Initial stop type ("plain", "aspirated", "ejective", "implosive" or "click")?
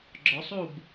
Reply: click